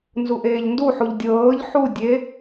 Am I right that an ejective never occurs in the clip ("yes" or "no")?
yes